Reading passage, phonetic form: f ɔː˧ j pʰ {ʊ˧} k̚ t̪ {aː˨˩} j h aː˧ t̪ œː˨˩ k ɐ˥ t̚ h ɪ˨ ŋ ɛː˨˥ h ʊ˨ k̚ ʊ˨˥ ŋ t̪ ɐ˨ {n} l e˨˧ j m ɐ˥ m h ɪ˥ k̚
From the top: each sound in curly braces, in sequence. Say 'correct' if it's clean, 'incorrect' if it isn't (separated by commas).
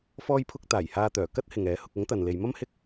correct, correct, correct